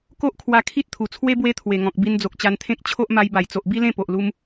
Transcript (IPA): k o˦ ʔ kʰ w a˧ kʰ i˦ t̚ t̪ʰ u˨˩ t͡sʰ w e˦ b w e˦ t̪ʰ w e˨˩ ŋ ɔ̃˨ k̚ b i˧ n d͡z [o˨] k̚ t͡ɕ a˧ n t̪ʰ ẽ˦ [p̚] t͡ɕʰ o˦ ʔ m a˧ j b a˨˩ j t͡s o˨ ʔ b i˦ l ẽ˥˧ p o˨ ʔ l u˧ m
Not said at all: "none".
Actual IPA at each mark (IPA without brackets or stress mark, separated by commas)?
o˨, k̚